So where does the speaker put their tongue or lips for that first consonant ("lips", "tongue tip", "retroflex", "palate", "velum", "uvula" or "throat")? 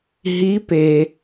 throat